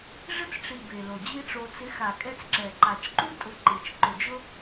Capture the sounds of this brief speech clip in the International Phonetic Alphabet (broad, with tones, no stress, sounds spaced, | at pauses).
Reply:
ʐ ɪ˦ t͡s ʈ͡ʂ i˨ b e˨ l o˨ d͡ʑ i˦ ʈ͡ʂ o˧ t͡s ɪ˨˦ x a˨ kʼ ɛ˧ t͡s ǁ ɛ˨ ǃ a˨ t͡ʃ ǃ u˦ tʼ ʊ˧ ǃ i˨ t͡ʃ ǃ ʊ˨ d͡ʒ ʊ˦